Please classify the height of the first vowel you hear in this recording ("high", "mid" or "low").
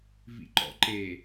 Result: high